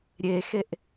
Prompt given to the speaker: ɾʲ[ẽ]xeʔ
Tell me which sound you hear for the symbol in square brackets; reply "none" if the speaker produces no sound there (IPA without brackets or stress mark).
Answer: e